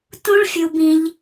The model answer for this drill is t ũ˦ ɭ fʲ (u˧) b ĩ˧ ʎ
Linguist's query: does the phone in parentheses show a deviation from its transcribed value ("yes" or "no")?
no